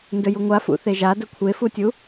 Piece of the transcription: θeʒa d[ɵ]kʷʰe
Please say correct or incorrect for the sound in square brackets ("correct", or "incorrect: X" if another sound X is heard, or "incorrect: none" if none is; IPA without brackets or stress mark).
correct